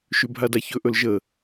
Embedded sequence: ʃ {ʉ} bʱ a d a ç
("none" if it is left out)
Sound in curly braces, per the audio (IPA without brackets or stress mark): ʉ